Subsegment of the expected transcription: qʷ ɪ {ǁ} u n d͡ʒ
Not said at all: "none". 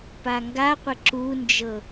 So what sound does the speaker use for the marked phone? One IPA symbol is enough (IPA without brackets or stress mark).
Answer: ǁ